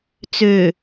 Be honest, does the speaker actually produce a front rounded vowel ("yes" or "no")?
yes